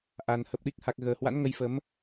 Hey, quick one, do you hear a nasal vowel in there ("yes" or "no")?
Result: no